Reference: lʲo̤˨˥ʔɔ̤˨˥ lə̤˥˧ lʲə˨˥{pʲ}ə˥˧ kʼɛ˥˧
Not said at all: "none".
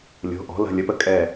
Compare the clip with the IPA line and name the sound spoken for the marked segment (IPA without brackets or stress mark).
p